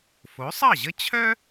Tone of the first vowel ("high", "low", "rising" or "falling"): rising